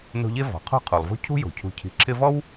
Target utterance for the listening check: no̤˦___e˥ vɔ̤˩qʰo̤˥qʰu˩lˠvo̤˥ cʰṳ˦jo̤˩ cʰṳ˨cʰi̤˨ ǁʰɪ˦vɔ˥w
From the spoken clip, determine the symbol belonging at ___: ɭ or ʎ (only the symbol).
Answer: ʎ